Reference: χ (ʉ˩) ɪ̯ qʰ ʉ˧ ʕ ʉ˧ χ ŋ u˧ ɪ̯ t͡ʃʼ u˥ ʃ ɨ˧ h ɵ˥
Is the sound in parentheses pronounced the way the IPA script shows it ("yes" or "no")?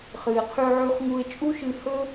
no